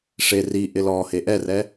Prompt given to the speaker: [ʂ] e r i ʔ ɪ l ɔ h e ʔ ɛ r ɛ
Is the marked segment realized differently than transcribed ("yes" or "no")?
no